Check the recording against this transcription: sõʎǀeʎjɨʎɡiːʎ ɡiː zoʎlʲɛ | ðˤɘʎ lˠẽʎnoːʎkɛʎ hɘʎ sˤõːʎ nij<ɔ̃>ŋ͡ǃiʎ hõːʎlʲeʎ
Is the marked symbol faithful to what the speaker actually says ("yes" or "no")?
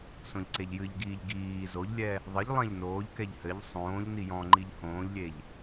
yes